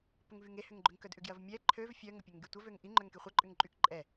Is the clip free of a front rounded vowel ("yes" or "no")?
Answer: no